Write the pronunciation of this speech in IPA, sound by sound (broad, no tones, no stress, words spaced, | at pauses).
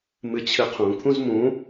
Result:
mɨt͡ɕʰɨqʰũ kʰũzmũ